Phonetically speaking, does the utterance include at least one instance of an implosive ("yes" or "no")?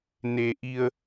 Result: no